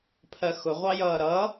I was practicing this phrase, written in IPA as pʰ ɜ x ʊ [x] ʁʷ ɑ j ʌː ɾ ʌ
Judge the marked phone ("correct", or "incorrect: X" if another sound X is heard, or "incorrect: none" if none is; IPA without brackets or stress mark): incorrect: none